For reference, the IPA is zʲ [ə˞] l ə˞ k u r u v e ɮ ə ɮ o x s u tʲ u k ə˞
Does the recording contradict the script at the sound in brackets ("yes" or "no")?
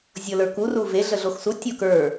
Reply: yes